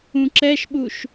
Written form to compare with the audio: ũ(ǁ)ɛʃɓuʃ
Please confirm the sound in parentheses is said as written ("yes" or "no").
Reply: yes